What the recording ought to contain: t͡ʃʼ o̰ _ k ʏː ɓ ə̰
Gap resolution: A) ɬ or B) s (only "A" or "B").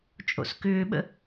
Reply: B